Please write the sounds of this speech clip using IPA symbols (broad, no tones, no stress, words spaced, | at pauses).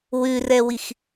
wʉrɛwix